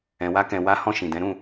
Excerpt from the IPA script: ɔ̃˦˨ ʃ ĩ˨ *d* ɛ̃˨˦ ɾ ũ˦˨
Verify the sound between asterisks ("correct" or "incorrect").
correct